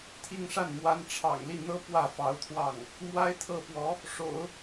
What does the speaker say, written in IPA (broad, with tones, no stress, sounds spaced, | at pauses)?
t̪ʰ i˥˧ ŋ ʂ a˥˩ n m w a˥ n ʈ͡ʂʰ ɑ̰˨˩ ŋ l i˥˩ n̪ ɤ˥ p w ä˥˩ f ɑ˧˥ ʊ̯ t̪ʰ w ɑ˥˩ ŋ | m w a˥ ɪ̯ t̪ʰ ɤ˥˩ p w ɔ˧˥ | ʂ o̰˨˩˦ ʊ̯